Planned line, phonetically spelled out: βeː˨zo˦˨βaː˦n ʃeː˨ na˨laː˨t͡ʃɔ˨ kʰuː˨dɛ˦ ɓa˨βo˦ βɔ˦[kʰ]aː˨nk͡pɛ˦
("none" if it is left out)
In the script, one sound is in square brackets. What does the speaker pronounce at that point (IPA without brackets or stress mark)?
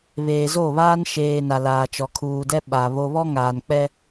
ŋ